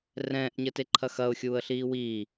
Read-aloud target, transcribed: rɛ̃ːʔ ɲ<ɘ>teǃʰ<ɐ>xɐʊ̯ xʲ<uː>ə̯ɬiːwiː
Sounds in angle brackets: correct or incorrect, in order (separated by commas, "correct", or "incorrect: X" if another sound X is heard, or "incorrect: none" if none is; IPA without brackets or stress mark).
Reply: correct, correct, correct